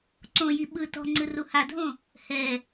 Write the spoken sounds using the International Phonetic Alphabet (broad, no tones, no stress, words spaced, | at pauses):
ǀõji ɓɯ tɔ̤ŋ͡ǀɯ ruhadʱõ | hɛ